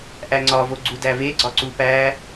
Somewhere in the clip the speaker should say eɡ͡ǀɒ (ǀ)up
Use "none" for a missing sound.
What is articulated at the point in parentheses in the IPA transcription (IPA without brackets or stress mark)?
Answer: ǀ